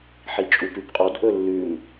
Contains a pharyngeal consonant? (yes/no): yes